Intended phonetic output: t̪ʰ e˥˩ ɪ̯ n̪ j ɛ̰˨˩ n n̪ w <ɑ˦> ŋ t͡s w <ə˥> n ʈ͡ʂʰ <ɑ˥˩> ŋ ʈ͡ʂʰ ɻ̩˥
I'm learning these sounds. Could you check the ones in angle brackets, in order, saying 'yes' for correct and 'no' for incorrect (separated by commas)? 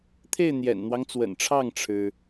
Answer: yes, no, yes